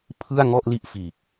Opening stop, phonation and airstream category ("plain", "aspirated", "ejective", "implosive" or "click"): aspirated